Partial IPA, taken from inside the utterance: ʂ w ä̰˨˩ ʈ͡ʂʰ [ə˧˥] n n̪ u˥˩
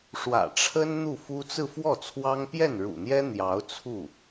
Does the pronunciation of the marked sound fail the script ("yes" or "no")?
yes